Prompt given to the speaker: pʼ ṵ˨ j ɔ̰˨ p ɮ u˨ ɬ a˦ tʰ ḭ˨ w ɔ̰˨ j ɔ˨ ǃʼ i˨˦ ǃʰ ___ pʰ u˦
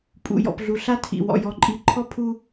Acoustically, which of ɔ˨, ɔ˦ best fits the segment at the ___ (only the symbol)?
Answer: ɔ˦